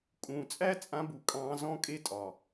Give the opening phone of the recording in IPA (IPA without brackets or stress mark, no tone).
kʼ